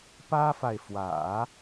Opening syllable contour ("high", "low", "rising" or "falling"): high